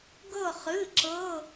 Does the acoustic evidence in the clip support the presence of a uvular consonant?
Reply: yes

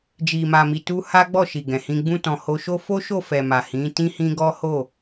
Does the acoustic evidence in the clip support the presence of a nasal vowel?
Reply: yes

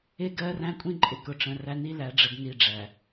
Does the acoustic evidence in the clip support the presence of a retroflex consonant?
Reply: yes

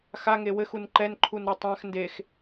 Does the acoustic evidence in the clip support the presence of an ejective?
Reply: no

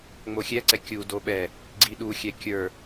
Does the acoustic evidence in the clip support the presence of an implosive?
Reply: yes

